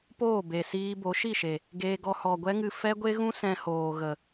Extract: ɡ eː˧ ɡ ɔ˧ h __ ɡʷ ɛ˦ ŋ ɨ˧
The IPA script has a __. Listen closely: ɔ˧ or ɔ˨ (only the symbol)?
ɔ˨